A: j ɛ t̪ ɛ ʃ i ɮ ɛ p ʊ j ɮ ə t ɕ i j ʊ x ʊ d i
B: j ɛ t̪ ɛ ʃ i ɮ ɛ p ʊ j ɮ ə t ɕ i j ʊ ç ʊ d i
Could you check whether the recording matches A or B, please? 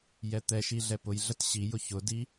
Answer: B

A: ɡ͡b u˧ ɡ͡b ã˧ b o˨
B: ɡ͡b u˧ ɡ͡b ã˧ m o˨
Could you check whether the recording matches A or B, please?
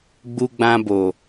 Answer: A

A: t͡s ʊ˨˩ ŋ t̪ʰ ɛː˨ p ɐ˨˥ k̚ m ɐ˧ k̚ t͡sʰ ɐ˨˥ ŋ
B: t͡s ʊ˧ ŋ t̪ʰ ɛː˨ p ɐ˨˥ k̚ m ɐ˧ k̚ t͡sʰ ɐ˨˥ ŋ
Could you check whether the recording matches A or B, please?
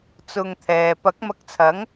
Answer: B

